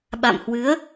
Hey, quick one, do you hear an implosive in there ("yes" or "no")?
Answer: yes